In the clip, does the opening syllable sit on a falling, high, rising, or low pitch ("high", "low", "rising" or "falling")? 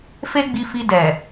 high